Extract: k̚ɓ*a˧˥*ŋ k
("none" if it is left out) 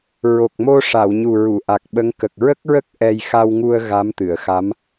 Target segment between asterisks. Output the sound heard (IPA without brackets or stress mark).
ə˧˥